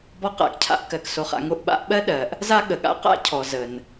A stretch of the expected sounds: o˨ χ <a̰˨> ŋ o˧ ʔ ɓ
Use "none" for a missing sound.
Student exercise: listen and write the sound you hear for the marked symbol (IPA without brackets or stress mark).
a̰˨